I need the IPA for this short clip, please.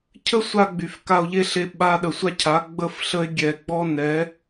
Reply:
cʰ ə˦ sʷ a˧ ɡ͡b y˨ f k a˧ o̯ ʎ e˦ ɬ e˧ ɓ a˧ ɗ ə˨ sʷ a˦ cʰ a˨˦ ɡ͡b ə˦ f ɬ ə˦ e̯ ɡʲ ɛ˨ ɡ͡b ɔ˦ n ɛ˨˦

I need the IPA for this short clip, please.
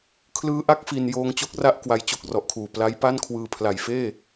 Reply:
kʰ l ɯː˦˥ ʔ a˦˥ k̚ f i˧ n j oː˧ ŋ t͡ɕ o˦˥ k̚ r a˦˥ ʔ k w a˦˥ j t͡ɕ o˦˥ k̚ r ɔ˨˩ ʔ kʰ uː˨˩ p l a˦˥ j p a˥˩ n kʰ w ɯː˧ pʰ l a˨˩ j f eː˥˩

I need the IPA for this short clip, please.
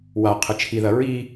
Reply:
w a qʰ ɨ t͡ʃʰ i ð ɐ ɹ i

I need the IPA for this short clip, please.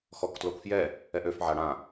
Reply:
x ɔ k t l o k f j ɛ | ɛ ʔ ø f ʕ a ɽ ã

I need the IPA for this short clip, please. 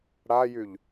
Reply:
ɽ a j y ʎ

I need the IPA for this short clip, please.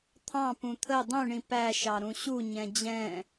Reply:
t̪ʰ ɑ̃ p ũ t̪ʰ ə dˤ ũ ɳ ĩ p æ ʃ ɑ ɾ ũ ɕ u ɲ ɛ̃ d͡ʑ ɛ̃

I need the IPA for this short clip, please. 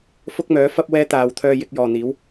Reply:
f ʊ˥ k̚ m œː˨˥ f ɐ˥ p̚ w ɛː˥ t̪ aː˨˧ w t̪ʰ œː˧ j ɪ˧ k̚ j ɔː˨ n̪ iː˨˥ w

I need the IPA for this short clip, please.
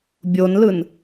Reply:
bʲ o n l ɯ n

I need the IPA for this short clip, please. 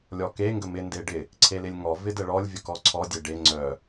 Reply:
lʲ ɔ k e ŋ ɡ ə m ɪ n d e ɖ ɪ | ǀʰ e l ɪ lʲ ŋ ɔ v ɪ d ə ɭ ɔ lʲ vʲ ə k ɔ ǀʰ ɔ dʲ e ɖ e ŋ͡ǀ œ

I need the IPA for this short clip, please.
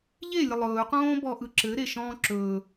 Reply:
ʎ e lʲ ə lˠ ɵː q õː b ɔ ʔ ɯ ǁ ɘ ɾ e ʃ ɔ̃ː ǁ ɵː

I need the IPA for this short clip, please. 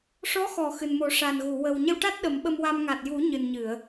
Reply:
ʂ ɔ˧˥ x ɔ˨˩˨ x ɨ˨˩ n m o˨˩˦ ʂ a˨˩ n ɣ u˨˩˨ w ə˨˩ w ɲ ə˧ w ʈ a˦˥ t̚ ɗ ə˨˩˦ m ɓ ə˧ m w a˧ m ŋ a˨˩ t̚ j u˨˩˦ ɲ ɨ˨˩ n ɲ ɨ˨˩˨ ə̯

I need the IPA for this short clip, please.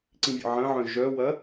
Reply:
ǀ ĩ vʲ ə̰ ʕ ɐ̃ ʕ œ̃ ʒ œ w ɐ

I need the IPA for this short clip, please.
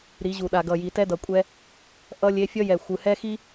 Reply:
ɾ i˨˦ ʑ u˨ ɗ a˨ ɡ ʌ˨ j i˨ t ɛ˦ d ʌ˨ kʷʼ ɛ˦ | ʔ ʌ˦ lʲ e˦ fʲ ʌ˦ j ɛ˨ xʷ ɯ˨ h ɛ˦ x i˦

